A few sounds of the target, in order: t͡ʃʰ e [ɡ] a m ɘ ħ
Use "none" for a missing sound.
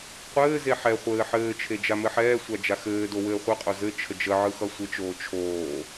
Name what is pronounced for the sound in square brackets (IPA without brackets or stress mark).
d͡ʒ